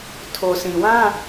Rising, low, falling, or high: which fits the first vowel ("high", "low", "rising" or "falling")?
low